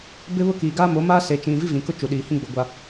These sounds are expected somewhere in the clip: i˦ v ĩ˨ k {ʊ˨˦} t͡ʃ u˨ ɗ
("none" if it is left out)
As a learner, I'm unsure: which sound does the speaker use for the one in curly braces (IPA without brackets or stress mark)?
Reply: ʊ˦